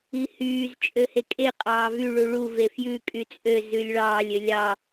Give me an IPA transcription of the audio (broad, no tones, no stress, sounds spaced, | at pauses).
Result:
i h yː z t͡ʃʼ ø h e kʼ e qʼ ɑː v y ɭ u ɭ u v e f j ʉ kʼ y t͡sʼ ø z ʉ lʲ ɭ ɑː lʲ ø lʲ ɑ